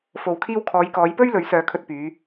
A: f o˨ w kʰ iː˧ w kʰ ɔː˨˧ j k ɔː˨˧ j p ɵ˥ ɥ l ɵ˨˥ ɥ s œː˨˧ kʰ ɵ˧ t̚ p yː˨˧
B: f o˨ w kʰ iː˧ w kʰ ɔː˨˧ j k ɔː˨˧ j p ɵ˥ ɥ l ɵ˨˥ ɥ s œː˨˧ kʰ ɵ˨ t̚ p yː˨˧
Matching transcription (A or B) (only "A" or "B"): A